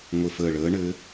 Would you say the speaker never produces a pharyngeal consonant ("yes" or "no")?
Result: yes